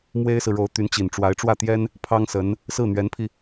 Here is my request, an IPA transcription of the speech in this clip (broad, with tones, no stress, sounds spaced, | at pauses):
m w e˥ ɪ̯ s ɹ̩˨ ɻ o˧˥ ʊ̯ t̪ y˧˥ n t͡ɕ i˨˩ n ʈ͡ʂ w a˧˥ ɪ̯ ʈ͡ʂ w ä˥˩ t̪ j ɛ˥ n | pʰ ɑ˥ ŋ s ə˧˥ n | s ɹ̩˥˩ n̪ ɥ ɛ˧˥ n pʰ i˧